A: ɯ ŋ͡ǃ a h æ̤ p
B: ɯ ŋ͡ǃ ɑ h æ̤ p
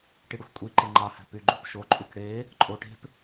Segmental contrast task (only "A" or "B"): B